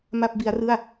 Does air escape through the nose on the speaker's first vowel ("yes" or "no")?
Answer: no